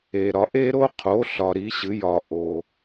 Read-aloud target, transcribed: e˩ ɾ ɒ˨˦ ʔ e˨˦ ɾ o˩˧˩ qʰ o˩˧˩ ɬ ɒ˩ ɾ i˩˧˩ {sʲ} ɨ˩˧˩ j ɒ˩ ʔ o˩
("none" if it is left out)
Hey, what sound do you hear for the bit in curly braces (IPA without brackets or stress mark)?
ɕ